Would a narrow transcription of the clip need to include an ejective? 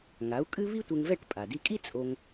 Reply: yes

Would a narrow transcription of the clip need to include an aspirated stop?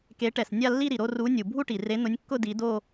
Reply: no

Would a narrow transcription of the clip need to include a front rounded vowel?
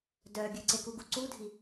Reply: yes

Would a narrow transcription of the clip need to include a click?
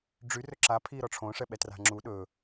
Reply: yes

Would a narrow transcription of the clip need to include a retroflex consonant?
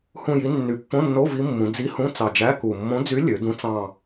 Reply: no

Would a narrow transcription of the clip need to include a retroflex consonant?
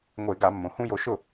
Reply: no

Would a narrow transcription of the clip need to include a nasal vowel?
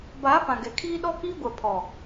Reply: yes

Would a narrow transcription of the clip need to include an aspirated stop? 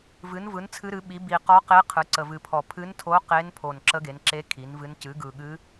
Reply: yes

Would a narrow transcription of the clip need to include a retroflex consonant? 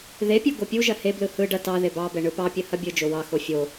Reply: yes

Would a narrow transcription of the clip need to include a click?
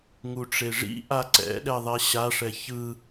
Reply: yes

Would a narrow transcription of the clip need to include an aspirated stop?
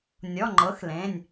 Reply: no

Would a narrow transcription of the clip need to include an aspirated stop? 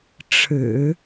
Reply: yes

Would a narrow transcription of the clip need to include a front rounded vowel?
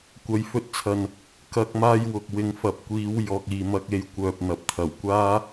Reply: yes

